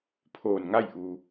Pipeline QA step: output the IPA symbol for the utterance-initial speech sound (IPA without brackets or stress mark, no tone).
pʰ